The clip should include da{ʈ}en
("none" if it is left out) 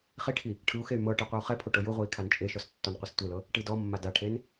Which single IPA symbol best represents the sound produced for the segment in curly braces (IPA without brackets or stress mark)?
ʈʰ